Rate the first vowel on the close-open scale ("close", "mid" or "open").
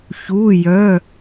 close